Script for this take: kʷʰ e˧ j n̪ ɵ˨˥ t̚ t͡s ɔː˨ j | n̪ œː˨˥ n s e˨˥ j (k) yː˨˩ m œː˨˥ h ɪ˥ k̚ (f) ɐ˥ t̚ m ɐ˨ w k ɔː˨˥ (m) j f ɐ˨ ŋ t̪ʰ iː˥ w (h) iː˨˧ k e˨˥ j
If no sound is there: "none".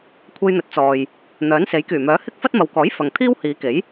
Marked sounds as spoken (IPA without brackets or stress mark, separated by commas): k, f, none, h